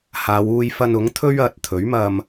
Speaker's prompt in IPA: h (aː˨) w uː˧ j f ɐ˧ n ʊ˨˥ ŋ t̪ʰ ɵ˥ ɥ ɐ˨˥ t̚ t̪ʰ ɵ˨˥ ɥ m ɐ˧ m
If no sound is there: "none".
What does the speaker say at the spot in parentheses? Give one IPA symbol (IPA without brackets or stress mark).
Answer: aː˨˧